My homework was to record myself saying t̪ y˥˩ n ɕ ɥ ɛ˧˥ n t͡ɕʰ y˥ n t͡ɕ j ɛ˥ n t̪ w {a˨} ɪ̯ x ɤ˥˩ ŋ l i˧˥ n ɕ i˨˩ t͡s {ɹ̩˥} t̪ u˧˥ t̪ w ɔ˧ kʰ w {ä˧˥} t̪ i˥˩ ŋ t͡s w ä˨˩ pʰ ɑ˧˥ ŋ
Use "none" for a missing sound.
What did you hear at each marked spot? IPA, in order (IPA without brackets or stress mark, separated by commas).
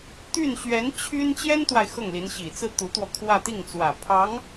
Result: a˨, ɹ̩˥˩, ä˥˧